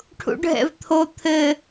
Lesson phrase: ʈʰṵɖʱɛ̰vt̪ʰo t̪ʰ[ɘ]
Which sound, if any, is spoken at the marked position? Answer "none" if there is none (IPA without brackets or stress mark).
ɘ